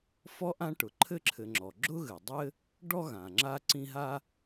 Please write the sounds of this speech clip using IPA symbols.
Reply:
fɔ˥ʔã˥ ʈʊ˩ǃʰɘ˥ǁʰɘ˨ŋ͡ǁɔ˩ ɡ͡ǁʊ˥ɣɘ˩dˤɘ˥ | ɖɔ˥ɣã˩ŋ͡ǁa˦ ǀĩ˦ɦa˥

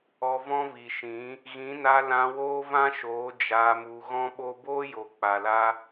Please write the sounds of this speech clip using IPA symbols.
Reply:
ɔ˧vɔ̃˦vi˨ʃĩ˨˦ | ɣĩ˨˦na˧lã˧ woː˦vã˦ʃoː˨˦ d͡ʒaː˧mu˧ ɣɔ̃˦ɓo˦ boː˦jo˨k͡pa˨la˧

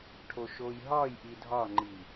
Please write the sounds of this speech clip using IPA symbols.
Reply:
ʈʰoʃojɦɒjʔi dʱɒŋ͡ǃi

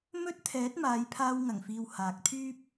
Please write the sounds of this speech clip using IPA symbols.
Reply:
mɵ˥t̚ t̪ʰɛː˨˥t̚maː˨˧j pʰaː˧wŋɐ˨˩ŋfiː˨w haː˨k̚t̪ʰyː˥p̚

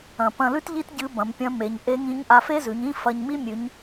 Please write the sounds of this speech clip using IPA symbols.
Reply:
ɐ̃˩ pɐ̃˧lʉ˥tʎi˥t ɟɨ˧˥bɐ̃˩˧mpʲɐ̃˧˥ me˩˧ɲ ʔe˧˥ŋĩ˧˥ɲ ʔa˧fe˥zʉ˩˧ɲĩ˥ fɐ˧ɲmi˥mʲʉ˩˧ɲ

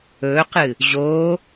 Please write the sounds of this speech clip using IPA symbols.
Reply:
ɵːqɨː | ʑoː

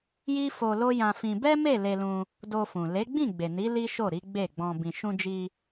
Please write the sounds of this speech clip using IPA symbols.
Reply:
ji˦fo˧ lo˦jã˧fĩ˧ bɛ˦me˦˨ le˧lũ˧ | do˧fũ˨ le˨˦ɡ͡bĩ˦˨ɡ͡be˨ni˨˦ li˦ ʃo˦˨ɾi˨˦ ɡ͡be˦˨ɡ͡bɔ̃˧ bĩ˨ʃũ˧d͡ʒi˧

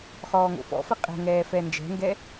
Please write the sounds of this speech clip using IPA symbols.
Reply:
χɔːŋo̰fɔ̰fɘ qʼɛ̤ŋɛː fɛnd͡ʒɛ̤ŋɡɛ

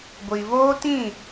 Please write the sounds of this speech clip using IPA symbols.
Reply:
ɡʷi˨voː˦tĩ˦˨

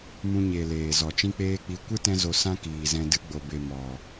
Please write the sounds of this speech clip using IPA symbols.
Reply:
mũ˧ɲe˨ leː˨zɔ˨ t͡ʃĩ˦k͡peː˦k͡pi˧ kʷɨ˦tɛ̃˧zo˨ sã˦ kiː˨zɛ̃˧ dɨ˧ɡ͡bo˨be˨ mɔ˨

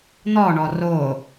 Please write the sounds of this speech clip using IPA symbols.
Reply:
n̪ɔɳɔ ro

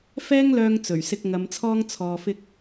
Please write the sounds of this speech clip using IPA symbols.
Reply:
fɛː˥ŋlœː˧ŋ t͡sɵ˨˩ɥsɪ˧k̚ ŋɐ˨˧mt͡sʰɔː˥ŋ t͡sʰɔː˧fɪ˥k̚

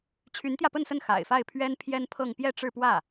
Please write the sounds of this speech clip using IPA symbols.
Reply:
t͡ɕʰy˧˥nt̪jä˧pə˥˧nsə˥˩n xa̰˨˩ɪ̯fa˥˩ɪ̯pʰɥɛ˥n pʰjɛ˥npʰɤ˥˧ŋ pjɛ˥˧ʈ͡ʂɻ̩˥˧pwä˥˩

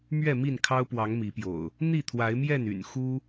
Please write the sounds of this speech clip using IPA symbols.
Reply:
mɥɛ˥˨mi˥˨nkʰɑ˦ʊ̯pwɑ˨˦ŋ mi˨˦pjo̰˨˩ʊ̯ | n̪i˥˨t̪ʰwa˨˦ɪ̯mjɛ˥˨n y̰˨˩n xu˦

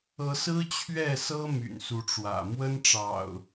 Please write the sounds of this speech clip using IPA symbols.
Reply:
ɤ˨˦sɹ̩˦t͡ɕʰɥɛ˥˨sɤ˦ my̰˨˩nsu˨˦ʈ͡ʂwä̰˨˩ mwə˦n ʈ͡ʂɑ̰˨˩ʊ̯

